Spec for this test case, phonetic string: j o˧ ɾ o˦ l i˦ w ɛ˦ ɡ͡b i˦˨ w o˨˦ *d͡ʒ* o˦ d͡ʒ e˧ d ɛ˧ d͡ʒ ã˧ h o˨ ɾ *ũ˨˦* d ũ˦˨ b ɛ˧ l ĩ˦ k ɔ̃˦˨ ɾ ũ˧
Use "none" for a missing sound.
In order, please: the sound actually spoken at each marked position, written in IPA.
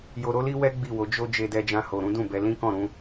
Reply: d͡ʒ, ũ˨˦

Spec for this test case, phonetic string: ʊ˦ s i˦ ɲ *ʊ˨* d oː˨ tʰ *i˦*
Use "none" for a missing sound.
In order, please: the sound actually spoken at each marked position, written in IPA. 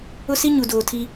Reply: u˨, i˦

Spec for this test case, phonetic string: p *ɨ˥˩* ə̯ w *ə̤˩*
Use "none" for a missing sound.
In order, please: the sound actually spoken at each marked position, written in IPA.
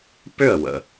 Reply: ʏ˥˩, ə̰˩

